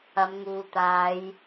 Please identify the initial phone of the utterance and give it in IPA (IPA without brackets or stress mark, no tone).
ɐ